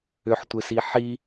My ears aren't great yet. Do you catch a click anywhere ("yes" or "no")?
no